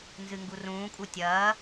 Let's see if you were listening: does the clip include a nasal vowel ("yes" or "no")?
yes